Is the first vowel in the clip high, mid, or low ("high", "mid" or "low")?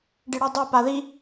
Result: high